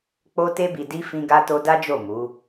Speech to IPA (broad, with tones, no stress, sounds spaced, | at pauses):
k͡p o˧ t e˧ b i˨ d i˧ f ĩ˧ ɡ a˧ t o˧ d a˦ d͡ʒ o˦˨ m u˨˦